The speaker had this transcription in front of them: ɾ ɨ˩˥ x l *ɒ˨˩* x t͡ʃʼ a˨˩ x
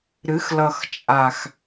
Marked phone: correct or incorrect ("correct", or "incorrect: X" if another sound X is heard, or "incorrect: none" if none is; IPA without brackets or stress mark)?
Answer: incorrect: ʌ˨˩